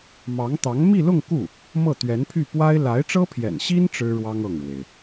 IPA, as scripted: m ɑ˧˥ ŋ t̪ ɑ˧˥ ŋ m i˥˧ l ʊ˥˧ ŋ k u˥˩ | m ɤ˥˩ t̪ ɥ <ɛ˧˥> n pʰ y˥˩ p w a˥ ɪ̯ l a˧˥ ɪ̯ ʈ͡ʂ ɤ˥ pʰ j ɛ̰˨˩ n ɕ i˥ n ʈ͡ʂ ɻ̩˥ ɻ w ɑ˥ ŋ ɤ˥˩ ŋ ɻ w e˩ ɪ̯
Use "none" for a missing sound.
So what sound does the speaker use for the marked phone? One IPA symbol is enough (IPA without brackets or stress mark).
ɛ˧˥